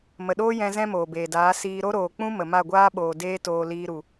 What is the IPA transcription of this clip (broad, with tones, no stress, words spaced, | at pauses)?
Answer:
mə˨ɗoː˦ jɛ̃˧ zɛ̃˦moː˨beː˨daː˨˦ siː˧ɾo˦ ɾoː˨k͡pũ˦ mə˨ma˦˨ɡʷaː˦ɓoː˨ deː˦toː˧ liː˧ ɾu˨